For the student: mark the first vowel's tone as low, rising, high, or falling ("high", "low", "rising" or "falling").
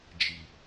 low